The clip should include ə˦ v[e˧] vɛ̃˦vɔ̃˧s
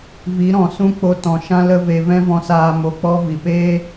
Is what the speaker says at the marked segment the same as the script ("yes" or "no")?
yes